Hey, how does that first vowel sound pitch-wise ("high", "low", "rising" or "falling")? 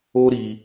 high